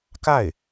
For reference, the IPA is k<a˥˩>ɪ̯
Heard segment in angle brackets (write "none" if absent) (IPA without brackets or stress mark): a˥˩